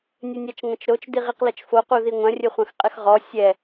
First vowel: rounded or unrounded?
unrounded